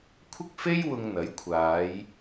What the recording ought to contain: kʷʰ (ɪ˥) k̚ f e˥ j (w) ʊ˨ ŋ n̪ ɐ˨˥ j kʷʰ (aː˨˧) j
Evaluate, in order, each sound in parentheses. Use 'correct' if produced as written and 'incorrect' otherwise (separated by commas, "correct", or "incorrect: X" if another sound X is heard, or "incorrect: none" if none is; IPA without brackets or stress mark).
correct, correct, correct